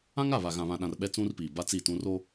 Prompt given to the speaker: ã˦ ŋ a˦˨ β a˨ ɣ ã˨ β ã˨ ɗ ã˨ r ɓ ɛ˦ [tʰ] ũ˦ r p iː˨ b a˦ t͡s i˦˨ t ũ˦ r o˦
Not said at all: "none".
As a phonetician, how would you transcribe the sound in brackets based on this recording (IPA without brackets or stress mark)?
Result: t͡s